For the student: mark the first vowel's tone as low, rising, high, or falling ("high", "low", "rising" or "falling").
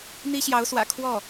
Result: high